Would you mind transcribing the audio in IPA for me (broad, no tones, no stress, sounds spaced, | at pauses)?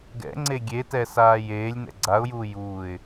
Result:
ɡ ɛ̰ ŋ͡ǀ e ɡʲ e t ɛ s aː j eː lʲ n ɛ̰ ɡ͡ǀ a ʊ̯ j uː j uː ɪ̯